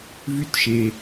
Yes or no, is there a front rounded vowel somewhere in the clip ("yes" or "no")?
yes